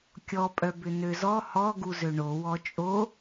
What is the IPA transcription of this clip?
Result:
kʲ ɔ pʼ œ b ʏ n ø z ɔ h ɔ ɡ u z ø ɳ o w ɔ t͡ʃʼ o

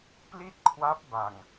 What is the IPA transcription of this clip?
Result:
p l i˥˩ t̚ kʰ w a˦˥ p̚ b a˨˩ ŋ

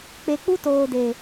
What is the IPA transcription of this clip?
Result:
k͡p e˨ k͡p u˦ t oː˨ d e˨

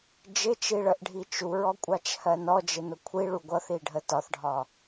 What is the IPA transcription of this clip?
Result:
d͡ʒ ɪ t͡ʃ i ɭ ə ʔ ɖʱ i t͡ʃ u ɹ ɔ kʷʼ ɑ t͡ʃ h ɜ n ɔ d͡ʒ ɪ n ʊ kʷʰ i ɭ u ɡʷ ʌ θ i ɖʱ ə t ɒ θ ɖʱ ɒ

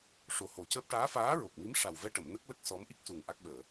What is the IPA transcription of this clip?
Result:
ʂ o˨˩ h o˨˩˦ c əː˦˥ p̚ ʈ aː˧˥ f aː˧˥ ɹ o˨˩ k̚ m i˧˥ m ʂ a˨˩ w v ɛ˧ ʈ ə˨˩˨ m n ə˦˥ k̚ l ə˦˥ k̚ s ɔ˧˥ m ʔ i˦˥ k̚ s u˨˩ ŋ ʔ a˦˥ k̚ ɓ əː˨˩˨

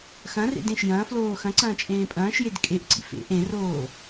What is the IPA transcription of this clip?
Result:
x ɐ̃ r ḛ d ẽ ʃ j ɐ̃ː f l oː x ɐ̃ ǀ ɐ̃ː t͡ʃʼ ẽː pʼ ɐ̃ː ʃ j e d kʼ e ʔ ǀ ḭ f ḛ ʔ ẽ r oː

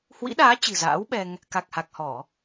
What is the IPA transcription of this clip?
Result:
h w ḭ˧˥ ɗ aː˨˦ t͡ɕ ɨ̤˨˩ z a̰ː˧˥ w ɓ ɛ˧ ŋ | k a˨˩ k̚ h a˨˩ k̚ h ɔ˧˩˨

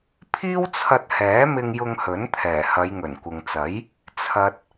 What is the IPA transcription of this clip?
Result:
pʰ iː˥ w t͡sʰ ɐ˧ t̚ h ɛː˨˥ m ɪ˧ ŋ j ʊ˧ ŋ h ɵ˨˥ n t̪ʰ ɛː˨˩ h ɐ˨˧ j ŋ ɵ˨˩ n kʷ ɪ˨ ŋ t͡s ɐ˨˥ j | t͡sʰ ɐ˨ t̚

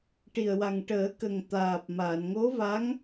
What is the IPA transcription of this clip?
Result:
ʈ i˨˩ ə̯ w a˨˩ ŋ ʈ əː˨˩˦ k ə˨˩ ŋ t̪ aː˨˩ p̚ m a˨˩˨ n ŋ o˧˥ v a˧˥ ŋ

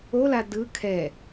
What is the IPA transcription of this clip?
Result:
o l a d ɯ kʰ ɛ

